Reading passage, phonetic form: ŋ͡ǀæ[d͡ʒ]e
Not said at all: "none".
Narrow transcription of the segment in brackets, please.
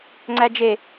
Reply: d͡ʒ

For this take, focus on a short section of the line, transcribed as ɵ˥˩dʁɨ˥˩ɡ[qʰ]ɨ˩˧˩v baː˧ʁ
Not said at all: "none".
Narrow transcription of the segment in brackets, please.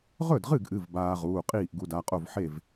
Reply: ʔ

